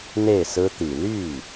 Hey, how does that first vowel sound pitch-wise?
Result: falling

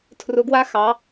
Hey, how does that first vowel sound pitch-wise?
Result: rising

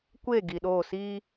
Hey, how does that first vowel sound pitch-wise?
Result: falling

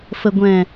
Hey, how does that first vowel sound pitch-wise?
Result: low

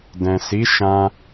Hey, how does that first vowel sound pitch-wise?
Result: low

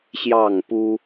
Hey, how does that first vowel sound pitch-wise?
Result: falling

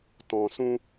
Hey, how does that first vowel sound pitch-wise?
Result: low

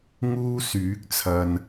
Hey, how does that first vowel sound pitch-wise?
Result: high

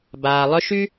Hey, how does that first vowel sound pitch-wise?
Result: low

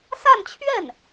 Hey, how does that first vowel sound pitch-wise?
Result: falling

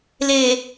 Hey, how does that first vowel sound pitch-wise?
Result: low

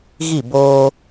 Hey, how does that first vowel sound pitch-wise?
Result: falling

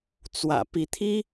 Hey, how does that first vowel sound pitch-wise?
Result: low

